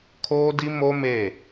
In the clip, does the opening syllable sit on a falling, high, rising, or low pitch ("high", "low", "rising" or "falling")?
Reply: high